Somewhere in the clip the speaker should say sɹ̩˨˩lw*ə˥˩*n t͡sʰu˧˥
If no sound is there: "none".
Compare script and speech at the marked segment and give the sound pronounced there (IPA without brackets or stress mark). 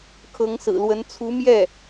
ə˧˥